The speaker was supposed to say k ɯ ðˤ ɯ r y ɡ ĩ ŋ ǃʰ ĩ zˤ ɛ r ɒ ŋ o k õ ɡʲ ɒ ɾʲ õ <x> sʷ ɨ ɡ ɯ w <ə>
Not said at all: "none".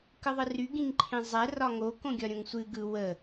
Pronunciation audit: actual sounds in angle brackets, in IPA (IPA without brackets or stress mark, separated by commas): ŋ, ə